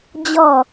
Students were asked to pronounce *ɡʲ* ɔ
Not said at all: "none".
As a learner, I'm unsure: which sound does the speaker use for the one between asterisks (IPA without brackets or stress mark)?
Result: d͡ʑ